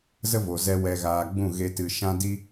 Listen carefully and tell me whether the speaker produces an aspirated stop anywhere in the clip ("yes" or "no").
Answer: no